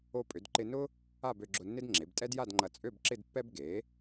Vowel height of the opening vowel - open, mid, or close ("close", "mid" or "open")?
mid